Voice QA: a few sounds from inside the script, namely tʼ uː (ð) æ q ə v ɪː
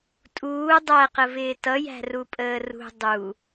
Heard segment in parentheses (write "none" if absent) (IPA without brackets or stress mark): dˤ